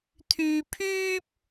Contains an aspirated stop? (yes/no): yes